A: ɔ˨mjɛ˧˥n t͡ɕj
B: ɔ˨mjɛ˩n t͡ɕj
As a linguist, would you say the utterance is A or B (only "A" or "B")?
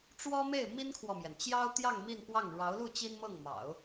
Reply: B